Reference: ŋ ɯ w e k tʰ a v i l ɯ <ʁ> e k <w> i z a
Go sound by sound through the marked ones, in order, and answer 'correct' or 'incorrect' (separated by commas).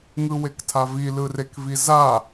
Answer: incorrect, incorrect